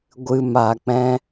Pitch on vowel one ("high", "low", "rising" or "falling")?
low